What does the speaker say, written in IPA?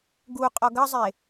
ɡ u qʼ ɔ ɡ ɐ zˤ e

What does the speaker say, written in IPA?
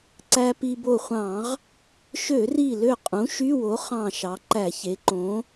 ǀ æ˧ p i˧ b o˧˩ χʷ ɑ̃˧˩˧ ʁ | ʃ ø˧˩˧ r i˧˩ l ø˧˩ qʼ ũ˩˥ ʃ y˧˥˧ w o˩˥ χ ɑ̃˧˩ ʃ ɑ˩˧ ǃ æ˧˩˧ ç e˩˥ ǃ õ˩˥

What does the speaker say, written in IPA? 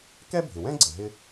k ɛ˥ bʱ ɪ˩ w ɛ̃˥ ɡ͡ǀ ə˩ ɦ ɪ˥

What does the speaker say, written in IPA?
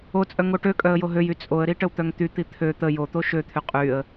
o t͡sʼ œ ŋ o ʈ ø kʼ œ ə̯ j o ɦ ø j y t͡sʼ o ə̯ ɾ i ʈ ə w t̪ œ ŋ t̪ y t̪ i t̪ʰ ø t̪ ə j o t̪ o ʃ ø t̪ʰ y qʼ y ə̯

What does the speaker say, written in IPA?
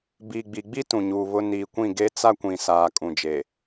b iː˨ ɡ͡b i˨ ɡ͡b i˦ t ũ˨ ɲ uː˨ β ʊ˦ n iː˨ kʷ ĩ˦˨ ɡ e˦ t͡s a˦ kʷ ĩ˨ s aː˨ kʼ ũ˨ d͡ʒ e˨

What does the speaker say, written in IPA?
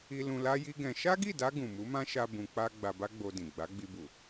i˦ l ũ˧ l a˦ j i˦ ɡ ɛ̃˧ ʃ a˦ ɡ i˦˨ d a˧ ɡ ũ˨ m u˨˦ m ã˦ ʃ a˧ b ũ˧ k͡p a˦ ɡ͡b a˧ b a˦ ɡ͡b o˧ d ĩ˨ ɡ͡b a˨˦ ɡ͡b i˧ b u˨

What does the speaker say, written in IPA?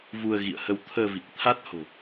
v u˧ ə̯ ɣ ḭ˧˨ ə̯ h ə˧ w t̪ʰ əː˧ v i˨˩ k̚ t̪ʰ a˦˥ t̚ h o̤˨˩

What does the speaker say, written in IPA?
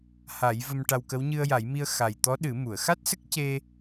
h a˨˩˦ j v ə˧ m ʈ a˧ w k ə˧˥ w ɲ ɨ˧ ə̯ j a˨˩˦ j m i˧ ə̯ x a˨˩ j t̪ ɔ˧˥ ɗ ɨ˨˩˦ m u˨˩˨ ə̯ x a˦˥ t̚ s ə˦˥ k̚ c e˧

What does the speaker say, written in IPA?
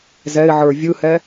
z ɛ ɪ̯ ʕ ə˞ vʲ ɯ h ɛ

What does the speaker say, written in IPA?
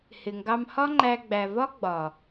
h ɪ˨ ŋ ɡ ɑ˧ m h ɒ˦ ŋ͡ǃ æ˧ ɡ͡b æ˨ v ɒ˦ ɡ͡b ɒ˨

